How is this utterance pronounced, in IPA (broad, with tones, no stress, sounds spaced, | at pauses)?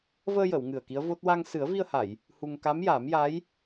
v əː˧ j ə˨˩˨ w ŋ ɨ˨˩ ə̯ k i˧˥ ə̯ v o˦˥ t̚ w a˧ ŋ s ɨ˨˩˦ ə̯ v i˧ ə̯ h a˨˩˨ j | h u˧ ŋ k a˧˥ m j a˨˩˦ m j a˧˥ j